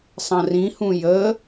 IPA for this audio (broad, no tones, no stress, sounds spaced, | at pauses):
sˤ ɐ̃ r ĩ h ũ j ə